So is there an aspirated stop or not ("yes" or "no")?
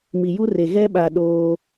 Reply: no